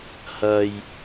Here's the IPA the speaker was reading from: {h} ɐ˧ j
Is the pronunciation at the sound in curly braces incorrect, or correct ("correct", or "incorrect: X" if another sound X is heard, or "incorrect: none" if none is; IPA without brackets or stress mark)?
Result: correct